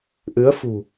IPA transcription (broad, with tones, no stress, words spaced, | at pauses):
ʔɨ˨˦ə̯fṳ˨˩